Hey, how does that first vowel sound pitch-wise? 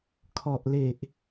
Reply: low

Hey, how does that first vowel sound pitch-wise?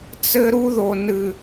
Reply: high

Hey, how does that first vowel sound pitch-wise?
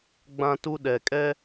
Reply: high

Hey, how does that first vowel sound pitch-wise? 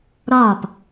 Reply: falling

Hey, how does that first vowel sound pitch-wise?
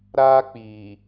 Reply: high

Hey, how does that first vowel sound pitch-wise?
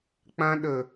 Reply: high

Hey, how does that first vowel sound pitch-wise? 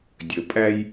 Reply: low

